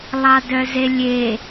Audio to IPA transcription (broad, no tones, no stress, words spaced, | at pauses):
lˠɑdœzelʲe